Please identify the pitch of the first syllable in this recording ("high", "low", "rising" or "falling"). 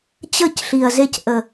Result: falling